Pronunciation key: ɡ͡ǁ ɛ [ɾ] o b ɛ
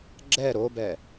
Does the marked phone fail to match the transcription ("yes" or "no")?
no